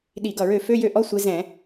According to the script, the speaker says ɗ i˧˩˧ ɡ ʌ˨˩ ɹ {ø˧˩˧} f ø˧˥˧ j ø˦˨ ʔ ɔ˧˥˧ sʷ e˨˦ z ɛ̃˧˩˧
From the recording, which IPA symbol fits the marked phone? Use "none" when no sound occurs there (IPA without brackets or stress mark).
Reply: ø˧˩˧